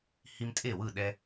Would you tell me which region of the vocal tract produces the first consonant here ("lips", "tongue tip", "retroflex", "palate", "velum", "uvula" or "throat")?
throat